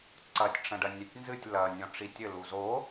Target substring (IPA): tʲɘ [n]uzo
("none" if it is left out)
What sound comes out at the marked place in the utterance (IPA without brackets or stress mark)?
l